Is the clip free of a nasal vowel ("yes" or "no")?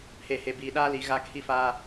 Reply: yes